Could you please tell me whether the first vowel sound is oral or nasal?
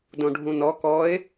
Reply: nasal